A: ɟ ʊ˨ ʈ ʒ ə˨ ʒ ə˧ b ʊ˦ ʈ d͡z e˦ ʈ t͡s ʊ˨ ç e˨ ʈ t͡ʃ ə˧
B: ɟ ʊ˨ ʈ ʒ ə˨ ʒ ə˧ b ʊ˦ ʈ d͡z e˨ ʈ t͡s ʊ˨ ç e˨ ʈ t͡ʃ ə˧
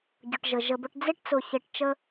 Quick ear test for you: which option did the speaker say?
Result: A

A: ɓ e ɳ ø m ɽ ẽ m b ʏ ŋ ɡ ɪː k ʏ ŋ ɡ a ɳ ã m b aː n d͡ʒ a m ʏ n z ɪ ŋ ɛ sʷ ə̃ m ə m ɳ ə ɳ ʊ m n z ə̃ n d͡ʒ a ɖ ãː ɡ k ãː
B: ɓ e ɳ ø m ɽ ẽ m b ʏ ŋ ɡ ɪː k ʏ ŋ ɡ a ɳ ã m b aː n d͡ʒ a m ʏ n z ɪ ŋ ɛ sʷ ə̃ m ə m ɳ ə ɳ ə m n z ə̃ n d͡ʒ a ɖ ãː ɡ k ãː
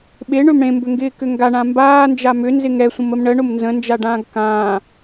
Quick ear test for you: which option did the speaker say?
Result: A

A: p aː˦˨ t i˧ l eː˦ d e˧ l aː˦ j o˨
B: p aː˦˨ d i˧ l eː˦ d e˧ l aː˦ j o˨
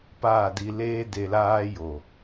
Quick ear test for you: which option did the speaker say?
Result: B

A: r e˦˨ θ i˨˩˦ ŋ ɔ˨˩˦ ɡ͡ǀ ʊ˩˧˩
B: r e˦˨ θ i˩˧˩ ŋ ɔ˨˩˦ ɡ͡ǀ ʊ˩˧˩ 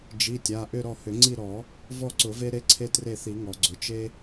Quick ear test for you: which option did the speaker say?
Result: A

